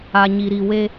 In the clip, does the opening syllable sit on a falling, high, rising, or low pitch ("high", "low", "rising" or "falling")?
low